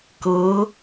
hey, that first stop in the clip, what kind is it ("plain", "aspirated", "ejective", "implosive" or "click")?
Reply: plain